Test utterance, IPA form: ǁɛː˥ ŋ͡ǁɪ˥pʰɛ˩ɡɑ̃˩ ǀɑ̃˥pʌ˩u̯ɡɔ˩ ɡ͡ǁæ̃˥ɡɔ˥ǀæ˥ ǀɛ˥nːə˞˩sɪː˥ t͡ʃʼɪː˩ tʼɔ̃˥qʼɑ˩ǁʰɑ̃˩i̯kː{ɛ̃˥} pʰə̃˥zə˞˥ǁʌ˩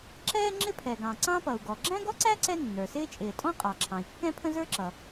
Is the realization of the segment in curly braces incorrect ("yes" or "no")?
no